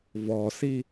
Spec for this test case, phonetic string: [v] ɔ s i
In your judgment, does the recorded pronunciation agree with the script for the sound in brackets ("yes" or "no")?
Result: yes